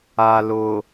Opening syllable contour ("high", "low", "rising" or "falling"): low